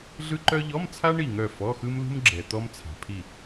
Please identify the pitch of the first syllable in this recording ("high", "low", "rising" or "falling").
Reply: high